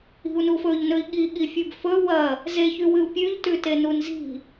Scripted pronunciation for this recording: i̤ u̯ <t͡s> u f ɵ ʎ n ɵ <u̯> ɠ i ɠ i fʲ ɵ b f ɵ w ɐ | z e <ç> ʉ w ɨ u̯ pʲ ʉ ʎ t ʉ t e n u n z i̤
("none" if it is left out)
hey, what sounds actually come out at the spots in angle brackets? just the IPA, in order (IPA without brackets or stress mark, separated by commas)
n, i̯, ç